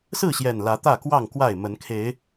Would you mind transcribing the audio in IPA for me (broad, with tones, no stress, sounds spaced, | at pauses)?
s ɹ̩˥˨ ɕ j ɛ˨˩ n l ä˨˦ t̪ ä˥˨ k w ɑ˥˨ ŋ k w a˥˨ ɪ̯ m ə˨˦ n kʰ e˨˦ ɪ̯